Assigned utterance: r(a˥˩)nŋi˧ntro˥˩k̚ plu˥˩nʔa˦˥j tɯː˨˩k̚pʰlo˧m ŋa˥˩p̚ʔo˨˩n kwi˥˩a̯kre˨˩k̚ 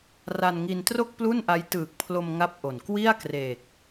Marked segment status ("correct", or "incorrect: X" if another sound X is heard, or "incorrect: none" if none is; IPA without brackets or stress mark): incorrect: a˧